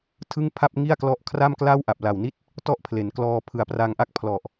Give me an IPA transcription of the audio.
tʰɯ˥˩ŋpʰa˥˩p̚ŋi˥˩a̯klɔ˦˥ʔ kʰra˥˩mkla˥˩w ʔa˨˩p̚la˨˩wni˥˩t̚ | tɔ˥˩ʔpʰle˩˦nklɔː˧ pʰɯ˨˩a̯pra˧ŋʔa˥˩k̚pʰlɔ˨˩ʔ

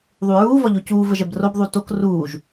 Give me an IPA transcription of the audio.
ðˤuɹuː vɒʎocuː vəʒɛbrob ðˤutok ruːʒ

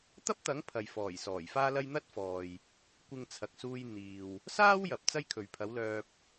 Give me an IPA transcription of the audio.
t̪ɐ˥p̚t̪ɐ˨˥ŋ pʰɐ˨j fɔː˨˩jsɔː˨˩j faː˥lɐ˥j n̪ɐ˥t̚fɔː˨j | kʷɪ˧ŋt͡sʰɐ˨k̚suː˧j n̪iː˨w | saː˥w jɐ˨p̚ t͡sɐ˥jkʰɵ˨ɥpʰɐ˨˥wlœː˧p̚

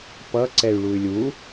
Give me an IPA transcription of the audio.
pʌ ǀɛy̯ɭuy̯lʲu

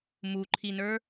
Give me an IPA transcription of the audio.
muǃʰinə˞

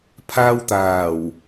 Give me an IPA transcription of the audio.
pʰaː˧wt̪aː˨˩w

